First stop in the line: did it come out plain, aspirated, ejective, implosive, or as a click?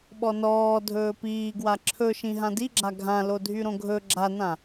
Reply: implosive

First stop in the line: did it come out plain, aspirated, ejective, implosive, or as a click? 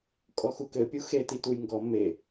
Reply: ejective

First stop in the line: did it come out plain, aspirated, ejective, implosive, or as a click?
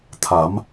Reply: aspirated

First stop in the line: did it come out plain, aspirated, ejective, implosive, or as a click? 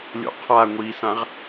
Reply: aspirated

